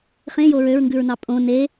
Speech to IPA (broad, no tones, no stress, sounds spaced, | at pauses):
χ ẽ j o ɹ ø ɹ ŋ ɡ ʉ ɹ n ɑ pʼ õ n e